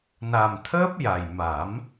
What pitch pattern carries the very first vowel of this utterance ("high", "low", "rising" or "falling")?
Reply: low